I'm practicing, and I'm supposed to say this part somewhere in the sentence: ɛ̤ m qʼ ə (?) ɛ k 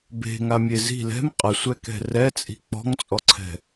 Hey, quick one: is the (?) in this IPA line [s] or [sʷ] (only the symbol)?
sʷ